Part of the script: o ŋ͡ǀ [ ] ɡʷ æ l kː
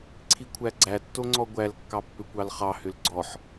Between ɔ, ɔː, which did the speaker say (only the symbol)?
ɔ